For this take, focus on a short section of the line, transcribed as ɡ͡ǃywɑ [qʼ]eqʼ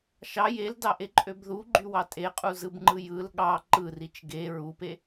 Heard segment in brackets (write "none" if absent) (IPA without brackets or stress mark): tʼ